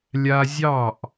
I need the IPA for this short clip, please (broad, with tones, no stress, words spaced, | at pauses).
lʲa˧ zʲɑ˦˨ʔ